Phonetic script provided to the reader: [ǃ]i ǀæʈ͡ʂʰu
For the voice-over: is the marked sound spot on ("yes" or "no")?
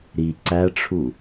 no